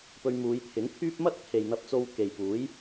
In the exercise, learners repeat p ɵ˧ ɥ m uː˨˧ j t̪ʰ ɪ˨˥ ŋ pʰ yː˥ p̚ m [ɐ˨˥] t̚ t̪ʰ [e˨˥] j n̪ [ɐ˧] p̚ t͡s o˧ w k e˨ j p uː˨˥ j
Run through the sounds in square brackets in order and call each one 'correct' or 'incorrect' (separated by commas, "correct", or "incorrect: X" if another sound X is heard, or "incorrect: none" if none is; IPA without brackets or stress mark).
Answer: incorrect: ɐ˥, incorrect: e˨, correct